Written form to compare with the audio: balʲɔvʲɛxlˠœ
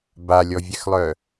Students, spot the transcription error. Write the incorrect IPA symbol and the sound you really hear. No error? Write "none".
none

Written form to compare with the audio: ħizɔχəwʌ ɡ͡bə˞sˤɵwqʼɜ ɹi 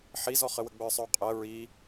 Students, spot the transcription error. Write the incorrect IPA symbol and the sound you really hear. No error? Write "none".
ʌ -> ə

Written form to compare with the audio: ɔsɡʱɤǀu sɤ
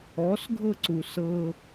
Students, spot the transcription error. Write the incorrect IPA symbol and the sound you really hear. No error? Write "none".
none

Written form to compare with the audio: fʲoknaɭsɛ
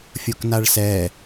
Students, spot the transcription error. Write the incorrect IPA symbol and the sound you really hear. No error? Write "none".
none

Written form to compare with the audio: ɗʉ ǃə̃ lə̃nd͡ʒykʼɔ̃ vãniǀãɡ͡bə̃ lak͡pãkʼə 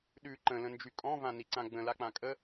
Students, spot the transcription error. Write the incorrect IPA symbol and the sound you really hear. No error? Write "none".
none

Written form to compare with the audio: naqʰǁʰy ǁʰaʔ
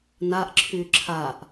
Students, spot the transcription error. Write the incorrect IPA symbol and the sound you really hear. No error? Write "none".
qʰ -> ʔ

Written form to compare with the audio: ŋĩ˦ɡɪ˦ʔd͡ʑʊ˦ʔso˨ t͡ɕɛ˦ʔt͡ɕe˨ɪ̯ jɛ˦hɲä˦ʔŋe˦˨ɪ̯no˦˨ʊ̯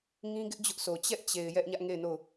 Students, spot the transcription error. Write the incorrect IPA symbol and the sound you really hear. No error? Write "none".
h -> ʔ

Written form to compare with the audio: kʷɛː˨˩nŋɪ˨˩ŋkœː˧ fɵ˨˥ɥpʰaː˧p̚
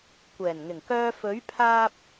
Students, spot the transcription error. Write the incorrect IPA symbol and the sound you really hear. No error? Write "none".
none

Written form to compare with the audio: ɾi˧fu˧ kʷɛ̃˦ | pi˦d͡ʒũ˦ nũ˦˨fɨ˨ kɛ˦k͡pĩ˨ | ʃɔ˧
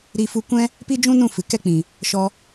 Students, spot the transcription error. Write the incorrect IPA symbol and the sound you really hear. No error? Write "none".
none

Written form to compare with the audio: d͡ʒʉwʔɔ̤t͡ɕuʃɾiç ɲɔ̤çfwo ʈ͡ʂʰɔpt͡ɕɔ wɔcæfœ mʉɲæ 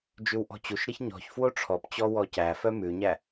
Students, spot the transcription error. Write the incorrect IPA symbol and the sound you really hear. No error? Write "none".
none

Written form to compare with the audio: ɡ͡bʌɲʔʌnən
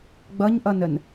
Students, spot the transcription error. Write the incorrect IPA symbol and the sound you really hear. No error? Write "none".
none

